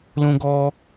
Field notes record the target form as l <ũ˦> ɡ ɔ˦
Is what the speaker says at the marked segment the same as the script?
yes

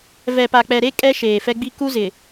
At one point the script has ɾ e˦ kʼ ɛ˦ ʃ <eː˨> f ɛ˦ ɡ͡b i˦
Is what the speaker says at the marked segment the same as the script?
yes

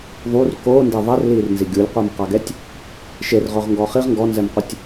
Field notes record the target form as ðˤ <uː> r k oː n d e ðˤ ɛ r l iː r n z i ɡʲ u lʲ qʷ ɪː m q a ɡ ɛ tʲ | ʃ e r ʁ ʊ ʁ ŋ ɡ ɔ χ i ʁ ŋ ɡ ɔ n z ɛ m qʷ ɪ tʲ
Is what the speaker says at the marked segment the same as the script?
no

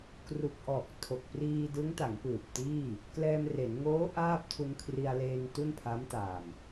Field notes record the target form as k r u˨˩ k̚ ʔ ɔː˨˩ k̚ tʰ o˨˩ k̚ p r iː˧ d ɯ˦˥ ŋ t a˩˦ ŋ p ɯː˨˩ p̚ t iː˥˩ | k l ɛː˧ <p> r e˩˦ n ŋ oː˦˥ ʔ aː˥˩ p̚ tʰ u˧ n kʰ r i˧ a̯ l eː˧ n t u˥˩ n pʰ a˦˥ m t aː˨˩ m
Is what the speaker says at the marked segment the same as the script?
no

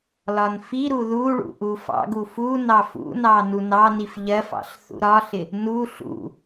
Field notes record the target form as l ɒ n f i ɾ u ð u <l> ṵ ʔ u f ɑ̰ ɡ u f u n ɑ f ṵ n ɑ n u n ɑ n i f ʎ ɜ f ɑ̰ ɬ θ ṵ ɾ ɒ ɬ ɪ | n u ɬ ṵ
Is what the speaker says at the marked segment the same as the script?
no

